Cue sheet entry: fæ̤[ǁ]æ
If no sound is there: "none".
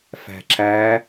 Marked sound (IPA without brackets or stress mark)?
ǁ